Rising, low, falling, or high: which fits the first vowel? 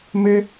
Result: high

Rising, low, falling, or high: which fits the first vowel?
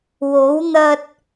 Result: rising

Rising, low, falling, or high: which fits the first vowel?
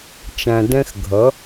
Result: low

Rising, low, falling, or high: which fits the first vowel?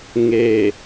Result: low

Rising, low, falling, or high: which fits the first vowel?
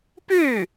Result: falling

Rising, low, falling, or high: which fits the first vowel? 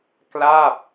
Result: falling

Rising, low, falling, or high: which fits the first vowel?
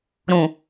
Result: low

